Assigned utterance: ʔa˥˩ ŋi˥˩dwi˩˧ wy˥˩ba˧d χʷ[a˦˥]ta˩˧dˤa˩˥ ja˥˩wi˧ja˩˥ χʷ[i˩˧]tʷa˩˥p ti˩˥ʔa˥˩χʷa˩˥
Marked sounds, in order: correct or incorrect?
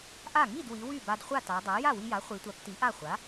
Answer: incorrect: a˥˩, correct

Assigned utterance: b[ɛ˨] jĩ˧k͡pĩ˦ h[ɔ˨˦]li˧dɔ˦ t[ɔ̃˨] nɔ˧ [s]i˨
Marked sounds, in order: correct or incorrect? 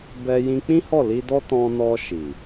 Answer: incorrect: ɛ˧, incorrect: ɔ˦˨, incorrect: ɔ̃˧, incorrect: ʃ

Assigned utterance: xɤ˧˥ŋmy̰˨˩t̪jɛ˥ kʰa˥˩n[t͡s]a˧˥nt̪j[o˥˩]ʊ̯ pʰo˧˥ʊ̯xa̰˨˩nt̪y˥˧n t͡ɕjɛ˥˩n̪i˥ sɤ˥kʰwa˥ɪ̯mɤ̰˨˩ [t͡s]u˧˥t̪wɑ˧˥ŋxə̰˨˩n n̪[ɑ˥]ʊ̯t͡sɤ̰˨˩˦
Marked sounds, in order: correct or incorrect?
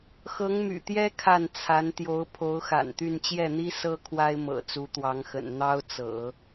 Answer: incorrect: t͡sʰ, incorrect: o˧˥, correct, correct

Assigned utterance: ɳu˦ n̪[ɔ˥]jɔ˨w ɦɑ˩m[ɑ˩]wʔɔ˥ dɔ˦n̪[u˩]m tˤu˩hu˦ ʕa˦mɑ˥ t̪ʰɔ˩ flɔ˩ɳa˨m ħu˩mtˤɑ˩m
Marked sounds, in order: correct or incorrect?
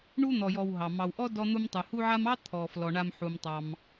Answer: incorrect: ɔ˨, incorrect: ɑ˨, incorrect: u˦

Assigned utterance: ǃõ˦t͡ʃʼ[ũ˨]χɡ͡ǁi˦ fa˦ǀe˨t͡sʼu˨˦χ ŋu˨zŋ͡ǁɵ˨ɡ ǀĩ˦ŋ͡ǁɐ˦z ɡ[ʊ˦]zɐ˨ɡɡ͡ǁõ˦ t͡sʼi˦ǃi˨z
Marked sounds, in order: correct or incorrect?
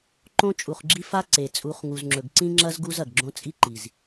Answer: incorrect: u˨, incorrect: u˦

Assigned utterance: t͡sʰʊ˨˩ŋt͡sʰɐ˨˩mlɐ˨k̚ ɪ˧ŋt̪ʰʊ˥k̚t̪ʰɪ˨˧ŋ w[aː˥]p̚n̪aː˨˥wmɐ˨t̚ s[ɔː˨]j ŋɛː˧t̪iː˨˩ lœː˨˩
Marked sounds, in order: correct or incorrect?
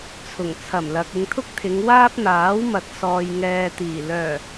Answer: correct, correct

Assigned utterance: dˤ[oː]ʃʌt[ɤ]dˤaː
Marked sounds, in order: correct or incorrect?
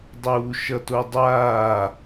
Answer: incorrect: uː, incorrect: o

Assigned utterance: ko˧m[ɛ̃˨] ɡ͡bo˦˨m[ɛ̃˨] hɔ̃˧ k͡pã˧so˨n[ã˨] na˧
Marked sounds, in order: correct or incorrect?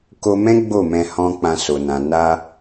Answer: incorrect: ɛ̃˦, incorrect: ɛ̃˧, correct

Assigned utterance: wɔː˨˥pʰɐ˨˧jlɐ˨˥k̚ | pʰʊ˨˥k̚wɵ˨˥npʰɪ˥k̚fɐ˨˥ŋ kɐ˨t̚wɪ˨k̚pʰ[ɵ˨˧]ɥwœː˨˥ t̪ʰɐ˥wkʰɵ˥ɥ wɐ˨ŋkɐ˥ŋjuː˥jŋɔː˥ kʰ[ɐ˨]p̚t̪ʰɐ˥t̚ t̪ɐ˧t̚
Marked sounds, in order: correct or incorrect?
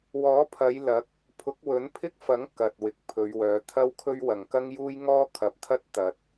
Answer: correct, incorrect: ɐ˨˥

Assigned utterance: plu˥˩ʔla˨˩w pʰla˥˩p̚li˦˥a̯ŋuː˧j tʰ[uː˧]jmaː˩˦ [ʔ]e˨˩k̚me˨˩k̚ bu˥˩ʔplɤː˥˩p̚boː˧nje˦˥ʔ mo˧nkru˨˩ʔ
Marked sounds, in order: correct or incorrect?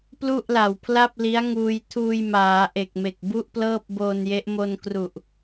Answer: correct, correct

